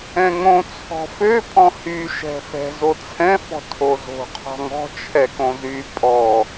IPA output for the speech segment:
ɛ̃ŋõ t͡sʰɔ̤fø pʼɔ̃hy ʃɛ̤fɛ̤ zot͡sʰɛ̃ fɔ̤tʰozo̤ qʰɔ̤ŋɔ̤ t͡ʃʰɛkõzy pʼɔ

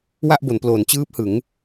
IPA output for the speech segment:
wa˥˩ʔbo˩˦nploː˩˦n t͡ɕɯː˦˥p̚hɯ˩˦ŋ

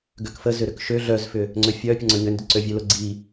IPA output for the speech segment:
ɡøkfə zʏɾʏkʃø ɮœzfʏ | ŋ͡ǀøfʲœ pʲəŋ͡ǀœɲʏndʏ ǀøvʲølʊɡ͡ǀi

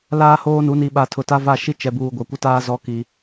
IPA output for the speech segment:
laː˦hoː˦nu˨˦ ni˨ɓa˨ tʰʊ˨ta˦va˦˨ ʃi˦t͡ʃɛ˨buː˨ɡʷa˨ kʷɪ˦taː˦zɔ˦ ki˦

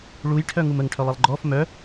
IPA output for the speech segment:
ɭujʈʰœ ŋuməŋʈʰœlˠilˠ ɡ͡ǃɔf mœ

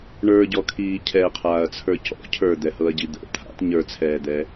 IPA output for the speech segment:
ɳə˞ɟɔkʰiː cʰɛqʰaːɐ̯t͡sʰə˞ cɔ̰ cʰə˞d̪ɛhɤɐ̯ɟi d̪ə̰ t̪ʰa̰t ɲə˞t͡sʰɛːd̪ɛ

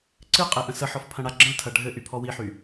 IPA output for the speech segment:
ǀɨ qʼeʔə̃səħɔf pʰɐ̃ɽaɡ͡ǁə̃ltʰɐ ɖʱɘ ʔypʰɔwiħy

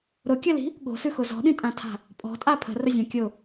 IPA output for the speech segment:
ɾʊkʲəli̤ | ɠo̤sʉxʊ zɔ̤ɗĩtʼãtʰa̤ | pʼɔ̤tʼa pʰə̤rəzʲã kʲʊ

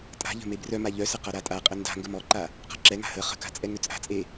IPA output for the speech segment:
tʼa̤ʎə̤ mebrœma ʎœsə qaɾatʼaqʼə nda̤ ŋɡəmɔǃa | qa̤ǁɛŋa̤ hə χə̤ka̤ t͡sʼɛŋøt͡sʼa̤t͡sʼe

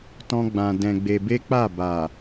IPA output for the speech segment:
tɔ̃˦ ɡ͡bã˧ dɛ̃˧ɡ͡be˧be˦k͡pa˦˨ ba˨

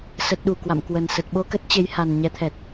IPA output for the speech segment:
sə˨˩t̚ɗu˧˩ kwa̰˧˨mkwə˨˩nsə˨˩t̚ ɓo˧kə˦˥t̚ t͡ɕe˨˦jha˨˩nɲɛ˨˦t̪ʰɛ˨˩t̚

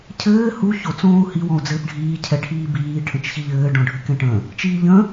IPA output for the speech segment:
cʰɘː hu ço t͡sõːu̯hi wɔ̃u̯d͡zɘːpɖʱiː cʰɛʈʰiːbiː ʈʰə̃t͡ʃçiʎɘː ɖɔ̃ɖʱɘkɛ̃ʈə̃ | t͡ʃiːʎə̃

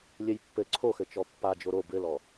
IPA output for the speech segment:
lʲɘjpːɘ ǀʰoxɘ t͡ʃɔpːa d͡ʒoɾo bɘlɔ

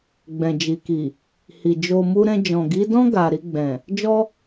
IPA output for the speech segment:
ɡ͡bɛ̃˨d͡ʒi˨ki˨ | hi˨ d͡ʒo˧mu˦ ɾɛ̃˧d͡ʒɔ̃˨ɡi˨˦dɔ̃˦ ɡa˧ ɾi˧ɡ͡bɛ̃˨ | d͡ʒɔ˦

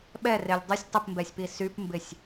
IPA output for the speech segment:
ɓɛrelʲ dˤɪsʲ tˤɪpmbɛsʲpi sypmbɪsʲ

